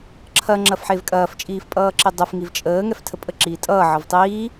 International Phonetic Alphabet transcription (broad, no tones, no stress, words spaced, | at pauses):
ǁʰɐ ŋ͡ǁɐfħevkʼɐːf t͡ʃʼiːfpʼʌːǁidˤɛf ŋivt͡ʃʼəː ŋɛftʰəpʼə ǁiːtʼʌː ʕʌvtˤiː